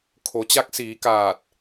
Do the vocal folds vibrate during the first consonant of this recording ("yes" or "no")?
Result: no